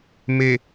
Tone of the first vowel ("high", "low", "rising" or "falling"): low